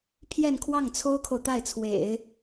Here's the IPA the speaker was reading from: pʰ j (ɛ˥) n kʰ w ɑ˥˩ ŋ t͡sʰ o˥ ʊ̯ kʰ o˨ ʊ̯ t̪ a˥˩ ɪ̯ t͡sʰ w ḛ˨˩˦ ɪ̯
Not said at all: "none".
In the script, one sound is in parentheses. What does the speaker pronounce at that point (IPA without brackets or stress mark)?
ɛ˥˧